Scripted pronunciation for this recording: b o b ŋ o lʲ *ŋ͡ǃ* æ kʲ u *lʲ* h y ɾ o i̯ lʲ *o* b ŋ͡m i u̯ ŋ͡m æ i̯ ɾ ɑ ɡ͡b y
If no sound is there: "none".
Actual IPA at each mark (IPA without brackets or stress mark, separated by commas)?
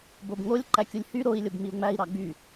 ǃ, lʲ, o